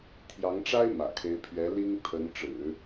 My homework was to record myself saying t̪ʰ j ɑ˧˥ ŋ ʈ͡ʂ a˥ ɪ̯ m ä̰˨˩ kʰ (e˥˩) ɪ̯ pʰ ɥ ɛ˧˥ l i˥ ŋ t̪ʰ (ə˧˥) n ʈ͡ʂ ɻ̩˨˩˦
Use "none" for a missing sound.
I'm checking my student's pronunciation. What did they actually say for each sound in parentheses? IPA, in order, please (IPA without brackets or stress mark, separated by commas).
e˧˥, ə˧˥